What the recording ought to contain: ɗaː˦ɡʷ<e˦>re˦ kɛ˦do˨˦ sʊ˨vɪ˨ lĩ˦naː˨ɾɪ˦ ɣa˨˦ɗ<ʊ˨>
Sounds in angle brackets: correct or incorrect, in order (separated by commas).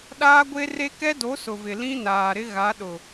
correct, correct